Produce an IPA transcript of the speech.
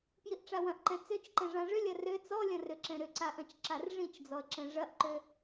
pjiʔʈ͡ʂawɐ̃ʔǃɛ̃ t͡søt͡ʃǃɛ̃ ʐãʐʏlʲɐ rø t͡sɔlʲɐ̃ rʏǁɛ̃ɾʏǀa ʔɐ̃t͡ʃǁarʐĩt͡ʃd͡zɔə̯ ǁɛ̃ʐɐʔǃø

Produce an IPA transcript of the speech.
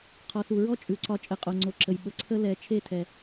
qʰɔ˨su˨ɹɔ˦ t͡ʃʼʉ˨ǀɒ˧ t͡ʃʼə˨ qʼo˨ŋ͡ǀo˨ǁə˨j ɓə˨ǀʰə˦ lɛ˨˦ t͡ʃʰe˦˨tʰɛ˨

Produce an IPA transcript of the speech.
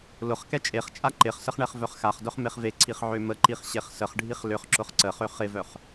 lʊχkɛ t͡ʃʼeχt͡ʃʼa ǃɪχsəχ ɳɛχvœχxaχdœχ meχveǀʰiχ ʕøməǃiχ ɕeχsəχɖʱiχ lʏχ ǁʊχǀəχø χɪvœχ

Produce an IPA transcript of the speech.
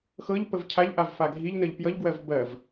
xɤʎ pəvcʰaʎʔav faɡʱiʎnəʎ pjʌʎɡwɜv bɜv

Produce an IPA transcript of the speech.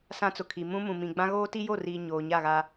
sã˦t͡sʊ˨kʰi˨ mũ˦mũ˨mĩ˨ ɡ͡bã˦ ɣoː˦ti˦jo˦˨riː˨ ɲoː˨ɲa˦˨ɣa˦

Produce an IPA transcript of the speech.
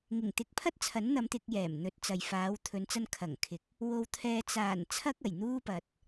ŋɪ˨˩ŋt̪ɪ˧k̚pʰɐ˥t̚ t͡sʰɐ˨˥nn̪ɐ˨˧mt̪ɪ˧k̚ jɛː˨˩mn̪ɵ˨˥t̚t͡sɐ˨j faː˨˧wt̪ʰɵ˨˧n t͡sɐ˧nkʰɐ˨˩ŋkʰɪ˨˥k̚ | wo˧wt̪ʰɛː˧ t͡saː˨˩n t͡sʰɐ˥k̚ɐ˨˩jn̪uː˥pɐ˨t̚

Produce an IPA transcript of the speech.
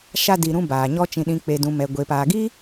ʃa˧di˨ɾũ˧ baː˨ɲɔ˦t͡ʃĩ˧ ɗĩ˨k͡pe˨dũ˨ mɛ˨ɡʷe˨paː˨ɡi˦

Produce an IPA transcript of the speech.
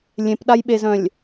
lʲẽpɗajɓezœ̃lʲ

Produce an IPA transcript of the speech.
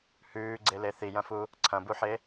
hʉːɡ͡ǀele θijɐ̃fu | ǀʰɐ̃buħe

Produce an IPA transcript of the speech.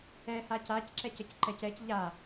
ɛha cacǁɛcəc ǃɛcɛc ʎa

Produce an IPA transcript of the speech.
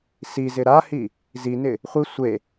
sizɪ ɾahi | zinɪ | χʷi sʷe

